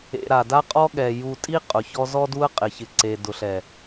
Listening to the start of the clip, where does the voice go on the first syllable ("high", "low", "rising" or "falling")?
low